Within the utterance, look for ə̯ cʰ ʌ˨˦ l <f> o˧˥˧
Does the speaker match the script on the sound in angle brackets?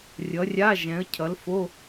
yes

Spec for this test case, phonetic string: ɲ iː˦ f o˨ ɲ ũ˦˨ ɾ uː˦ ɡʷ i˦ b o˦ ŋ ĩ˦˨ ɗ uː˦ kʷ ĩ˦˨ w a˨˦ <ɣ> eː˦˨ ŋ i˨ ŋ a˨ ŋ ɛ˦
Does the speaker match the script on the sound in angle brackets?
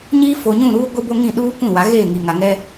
yes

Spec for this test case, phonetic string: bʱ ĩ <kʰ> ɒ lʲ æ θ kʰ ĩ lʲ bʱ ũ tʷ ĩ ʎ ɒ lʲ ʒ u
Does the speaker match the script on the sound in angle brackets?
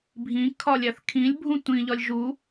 yes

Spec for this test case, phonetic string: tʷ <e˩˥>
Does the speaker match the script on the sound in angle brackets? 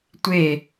no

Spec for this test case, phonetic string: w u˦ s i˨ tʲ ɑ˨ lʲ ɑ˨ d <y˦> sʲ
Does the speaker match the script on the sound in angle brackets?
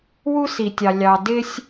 no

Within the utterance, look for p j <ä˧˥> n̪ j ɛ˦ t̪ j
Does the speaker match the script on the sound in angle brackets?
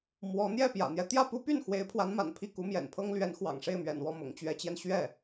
no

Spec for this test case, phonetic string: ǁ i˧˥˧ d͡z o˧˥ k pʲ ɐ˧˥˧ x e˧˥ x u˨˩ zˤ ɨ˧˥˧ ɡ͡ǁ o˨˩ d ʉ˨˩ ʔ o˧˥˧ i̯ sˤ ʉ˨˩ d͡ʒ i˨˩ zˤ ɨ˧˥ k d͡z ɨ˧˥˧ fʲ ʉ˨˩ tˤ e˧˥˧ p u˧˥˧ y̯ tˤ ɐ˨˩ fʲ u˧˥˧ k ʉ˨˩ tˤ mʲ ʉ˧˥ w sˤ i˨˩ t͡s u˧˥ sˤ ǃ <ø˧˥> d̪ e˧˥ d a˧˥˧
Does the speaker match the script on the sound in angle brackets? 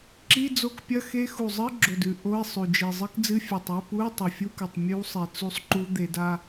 no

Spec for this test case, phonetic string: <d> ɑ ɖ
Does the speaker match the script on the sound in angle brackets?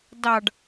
yes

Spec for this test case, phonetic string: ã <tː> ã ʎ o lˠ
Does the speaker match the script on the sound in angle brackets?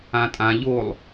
no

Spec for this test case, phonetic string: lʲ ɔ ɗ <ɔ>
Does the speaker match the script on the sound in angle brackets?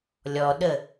no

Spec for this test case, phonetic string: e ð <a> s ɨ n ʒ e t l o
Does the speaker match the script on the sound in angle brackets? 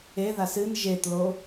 yes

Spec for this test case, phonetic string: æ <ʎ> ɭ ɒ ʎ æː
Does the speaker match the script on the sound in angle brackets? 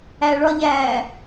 no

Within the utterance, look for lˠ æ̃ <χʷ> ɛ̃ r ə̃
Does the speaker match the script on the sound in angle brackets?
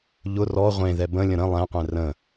no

